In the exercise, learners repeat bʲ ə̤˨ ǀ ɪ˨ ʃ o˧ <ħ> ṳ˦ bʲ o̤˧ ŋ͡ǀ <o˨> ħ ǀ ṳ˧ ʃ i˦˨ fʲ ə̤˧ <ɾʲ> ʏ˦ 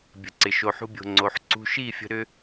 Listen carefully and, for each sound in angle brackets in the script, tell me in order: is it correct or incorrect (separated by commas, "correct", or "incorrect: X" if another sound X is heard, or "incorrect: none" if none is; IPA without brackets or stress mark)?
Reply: correct, correct, incorrect: ɾ